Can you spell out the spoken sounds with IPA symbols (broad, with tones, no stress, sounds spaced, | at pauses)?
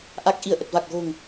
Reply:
ʔ a˨˩ k̚ ʔ i˧˩ ə̯ ʔ ə˨˩ t̚ v a˨˩ k̚ ɣ o̤˨˩ ŋ